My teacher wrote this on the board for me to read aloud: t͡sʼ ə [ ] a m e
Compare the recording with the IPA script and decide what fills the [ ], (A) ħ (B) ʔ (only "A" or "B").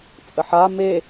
A